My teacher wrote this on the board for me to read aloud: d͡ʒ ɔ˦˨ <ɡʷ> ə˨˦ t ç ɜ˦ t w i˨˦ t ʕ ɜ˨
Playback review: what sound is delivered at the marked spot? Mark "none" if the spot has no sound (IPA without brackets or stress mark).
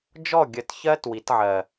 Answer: ɡʲ